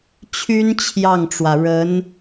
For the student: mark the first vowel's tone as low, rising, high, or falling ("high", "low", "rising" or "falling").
high